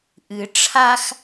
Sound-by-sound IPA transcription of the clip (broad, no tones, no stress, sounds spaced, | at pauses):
ʔ ɨ ʈ͡ʂʰ a x